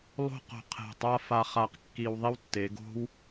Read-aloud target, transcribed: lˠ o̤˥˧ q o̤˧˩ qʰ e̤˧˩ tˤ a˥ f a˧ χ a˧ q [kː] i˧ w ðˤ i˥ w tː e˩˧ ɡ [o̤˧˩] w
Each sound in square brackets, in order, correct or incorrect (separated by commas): correct, incorrect